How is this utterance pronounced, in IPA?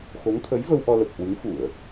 x o˨˦ ŋ t̪ʰ ə˨˦ j v ə˧ w ʔ ɔ˧ l ə˨˩ p̚ h w ɨ˨˦ ŋ x u˧˩˨ ə̯

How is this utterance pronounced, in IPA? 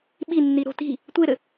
ɓ i nː i ɾ o̤ t i̤ | tʷ e ɾ ɘ

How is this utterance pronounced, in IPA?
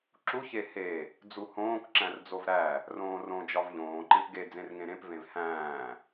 ǁ u ç e h e | d͡z u h õː k ǁ æ̃ r d͡z o v ɾ æ | r õː r õ d͡ʒ ɒ v ʎ õː ǃ ẽ p ɡ e d͡z ẽ r ŋ ẽ ɾ ẽ p v ẽ v h æ̃ː

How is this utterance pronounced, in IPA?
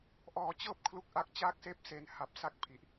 ʔ ɔː˧ t͡ɕ ɤː˥˩ p̚ kʰ l u˦˥ k̚ ʔ a˦˥ k̚ t͡ɕ aː˥˩ k̚ s eː˥˩ p̚ s e˧ n h a˨˩ p̚ s a˥˩ k̚ pʰ i˨˩ ʔ

